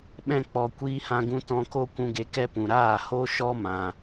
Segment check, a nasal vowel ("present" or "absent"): present